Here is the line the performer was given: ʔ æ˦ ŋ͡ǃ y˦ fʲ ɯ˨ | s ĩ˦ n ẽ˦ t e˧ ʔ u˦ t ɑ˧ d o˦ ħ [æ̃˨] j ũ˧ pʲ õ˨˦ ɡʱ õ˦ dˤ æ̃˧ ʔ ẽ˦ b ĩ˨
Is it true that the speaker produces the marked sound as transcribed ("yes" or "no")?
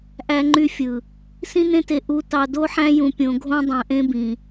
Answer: no